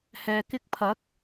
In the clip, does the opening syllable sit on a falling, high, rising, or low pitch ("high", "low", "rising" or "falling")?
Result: low